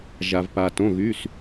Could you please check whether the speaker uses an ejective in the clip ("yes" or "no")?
no